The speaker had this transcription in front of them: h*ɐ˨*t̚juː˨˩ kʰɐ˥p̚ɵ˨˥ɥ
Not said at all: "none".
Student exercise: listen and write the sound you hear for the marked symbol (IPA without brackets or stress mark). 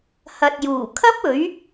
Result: ɐ˨